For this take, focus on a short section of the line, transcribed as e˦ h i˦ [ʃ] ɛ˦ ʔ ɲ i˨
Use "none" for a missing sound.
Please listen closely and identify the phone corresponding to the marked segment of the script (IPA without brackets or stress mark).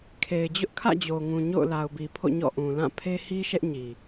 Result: ʃ